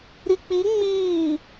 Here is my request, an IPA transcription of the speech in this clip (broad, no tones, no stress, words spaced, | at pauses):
ɾik͡pi ŋ͡miː